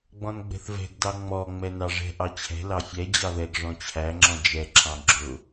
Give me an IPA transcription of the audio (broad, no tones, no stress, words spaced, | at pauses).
ɡ͡bɔ̃nɡ͡bɛ̤θvɛ̤ɡdɑ ŋ͡mɔ ŋ͡mɛnɑʐɛ̤ ʔɑt͡ɕʰɛ̤ lɑfʲɛ d͡ʑɑðɛɡ ʐɔ̃t͡ɕʰæŋ͡ǁɔ̃ d͡ʒɛǁʰɑ̃ ɡ͡ǁʊ